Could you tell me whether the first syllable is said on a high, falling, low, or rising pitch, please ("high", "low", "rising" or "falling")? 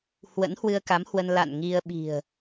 rising